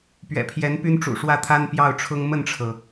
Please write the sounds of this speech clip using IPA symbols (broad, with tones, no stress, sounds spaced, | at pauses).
p ɥ ɛ̰˨˩ pʰ j ɛ˧˥ n p y˥ n ʈ͡ʂ ṵ˨˩ ʂ w ä˥˩ t̪ʰ a˥ n p j ɑ˥˩ ʊ̯ ʈ͡ʂʰ ʊ˥ ŋ m ə˥˩ n ʈ͡ʂʰ ɤ˩